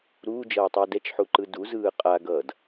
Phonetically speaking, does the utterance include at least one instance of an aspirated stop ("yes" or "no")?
no